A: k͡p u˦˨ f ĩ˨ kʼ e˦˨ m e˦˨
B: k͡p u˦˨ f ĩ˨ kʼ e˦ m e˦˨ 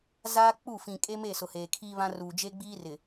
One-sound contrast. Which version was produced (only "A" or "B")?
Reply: B